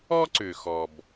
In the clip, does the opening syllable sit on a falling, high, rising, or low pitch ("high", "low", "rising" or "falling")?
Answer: high